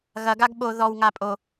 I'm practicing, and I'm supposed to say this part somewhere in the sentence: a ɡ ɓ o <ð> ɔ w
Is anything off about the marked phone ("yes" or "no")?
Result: no